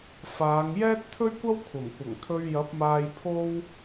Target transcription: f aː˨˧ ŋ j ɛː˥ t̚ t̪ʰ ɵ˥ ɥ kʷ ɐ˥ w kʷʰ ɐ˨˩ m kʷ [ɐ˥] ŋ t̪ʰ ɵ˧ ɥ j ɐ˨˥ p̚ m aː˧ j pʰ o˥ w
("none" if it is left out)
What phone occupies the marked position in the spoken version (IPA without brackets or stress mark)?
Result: ɐ˨˩